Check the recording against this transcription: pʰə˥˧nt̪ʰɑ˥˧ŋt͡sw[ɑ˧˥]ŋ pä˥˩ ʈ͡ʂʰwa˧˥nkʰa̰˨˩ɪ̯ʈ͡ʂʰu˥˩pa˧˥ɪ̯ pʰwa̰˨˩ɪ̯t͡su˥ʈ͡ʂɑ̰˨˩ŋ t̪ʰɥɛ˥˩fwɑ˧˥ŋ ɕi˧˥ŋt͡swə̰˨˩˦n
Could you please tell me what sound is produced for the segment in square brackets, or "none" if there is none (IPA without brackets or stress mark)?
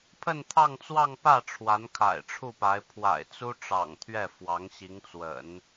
ɑ˥˧